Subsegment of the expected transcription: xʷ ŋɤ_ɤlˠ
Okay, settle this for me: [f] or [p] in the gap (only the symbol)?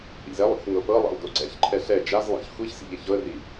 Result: p